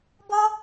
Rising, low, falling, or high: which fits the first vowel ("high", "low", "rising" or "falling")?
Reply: high